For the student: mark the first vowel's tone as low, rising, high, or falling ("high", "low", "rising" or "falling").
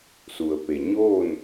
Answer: low